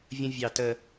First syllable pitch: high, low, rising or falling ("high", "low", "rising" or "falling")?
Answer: high